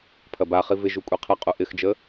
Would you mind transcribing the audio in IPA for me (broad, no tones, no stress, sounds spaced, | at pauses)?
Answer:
pʰ ɐ b a χ i v ɪ ʒ u kʷʼ i qʰ ə qʼ u ʔ ɪ x d͡ʒ ə